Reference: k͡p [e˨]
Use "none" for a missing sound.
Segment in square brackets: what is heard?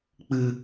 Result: ɨ˨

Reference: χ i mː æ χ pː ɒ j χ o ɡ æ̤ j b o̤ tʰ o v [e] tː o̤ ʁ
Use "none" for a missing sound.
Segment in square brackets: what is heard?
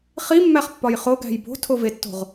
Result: e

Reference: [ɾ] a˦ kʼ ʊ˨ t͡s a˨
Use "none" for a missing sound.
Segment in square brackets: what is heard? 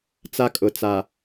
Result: t͡s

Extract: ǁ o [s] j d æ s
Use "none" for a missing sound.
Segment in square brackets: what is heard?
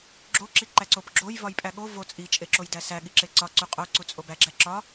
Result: none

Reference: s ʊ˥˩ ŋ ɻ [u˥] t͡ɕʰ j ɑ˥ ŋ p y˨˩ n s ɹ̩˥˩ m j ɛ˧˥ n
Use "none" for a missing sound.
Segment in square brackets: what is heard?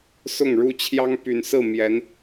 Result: u˥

